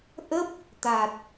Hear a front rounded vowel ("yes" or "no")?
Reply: no